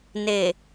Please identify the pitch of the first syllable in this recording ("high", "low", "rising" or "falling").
low